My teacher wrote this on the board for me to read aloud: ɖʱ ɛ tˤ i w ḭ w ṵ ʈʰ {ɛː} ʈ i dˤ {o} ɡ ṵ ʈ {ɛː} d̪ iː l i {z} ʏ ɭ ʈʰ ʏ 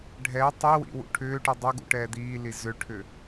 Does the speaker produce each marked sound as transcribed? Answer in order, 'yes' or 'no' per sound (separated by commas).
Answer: no, yes, yes, yes